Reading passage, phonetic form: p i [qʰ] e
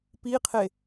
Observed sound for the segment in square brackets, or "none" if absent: qʰ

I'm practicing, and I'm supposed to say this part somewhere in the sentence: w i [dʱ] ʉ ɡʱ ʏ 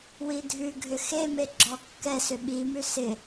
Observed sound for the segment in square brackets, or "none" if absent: dʱ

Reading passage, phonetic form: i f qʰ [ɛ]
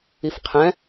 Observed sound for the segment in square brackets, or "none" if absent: ɛ̃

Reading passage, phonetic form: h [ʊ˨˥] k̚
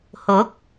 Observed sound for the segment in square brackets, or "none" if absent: ʊ˨˥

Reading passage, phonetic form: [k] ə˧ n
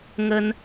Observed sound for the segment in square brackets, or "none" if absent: ŋ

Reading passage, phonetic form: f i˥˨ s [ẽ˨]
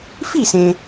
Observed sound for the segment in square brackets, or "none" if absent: ẽ˨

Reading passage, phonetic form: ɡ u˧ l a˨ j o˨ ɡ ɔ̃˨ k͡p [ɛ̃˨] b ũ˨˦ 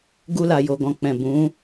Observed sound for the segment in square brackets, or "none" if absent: ɛ̃˨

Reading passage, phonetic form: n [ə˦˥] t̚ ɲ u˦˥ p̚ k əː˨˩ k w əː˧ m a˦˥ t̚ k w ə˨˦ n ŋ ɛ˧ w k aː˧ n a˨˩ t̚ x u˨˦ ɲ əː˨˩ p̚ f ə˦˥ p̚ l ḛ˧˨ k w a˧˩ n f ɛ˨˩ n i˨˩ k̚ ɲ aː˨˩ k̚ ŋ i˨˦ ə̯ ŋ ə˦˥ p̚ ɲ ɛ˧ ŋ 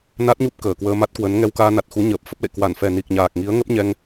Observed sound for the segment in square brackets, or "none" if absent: a˦˥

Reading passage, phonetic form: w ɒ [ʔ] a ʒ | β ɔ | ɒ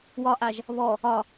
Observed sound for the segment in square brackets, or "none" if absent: ʔ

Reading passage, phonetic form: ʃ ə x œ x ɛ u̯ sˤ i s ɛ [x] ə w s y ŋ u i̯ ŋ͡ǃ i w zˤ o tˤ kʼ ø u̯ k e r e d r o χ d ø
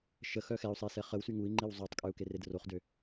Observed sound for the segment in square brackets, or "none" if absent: χ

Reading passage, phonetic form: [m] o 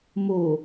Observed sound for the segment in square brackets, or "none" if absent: m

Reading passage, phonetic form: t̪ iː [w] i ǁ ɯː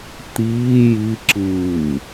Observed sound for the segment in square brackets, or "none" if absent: j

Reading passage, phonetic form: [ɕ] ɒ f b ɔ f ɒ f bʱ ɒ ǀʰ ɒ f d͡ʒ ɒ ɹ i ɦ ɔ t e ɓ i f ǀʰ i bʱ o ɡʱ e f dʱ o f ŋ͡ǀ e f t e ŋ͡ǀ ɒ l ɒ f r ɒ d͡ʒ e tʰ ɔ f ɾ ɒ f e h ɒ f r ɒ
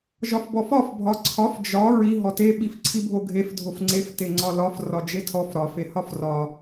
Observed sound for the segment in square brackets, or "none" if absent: ʒ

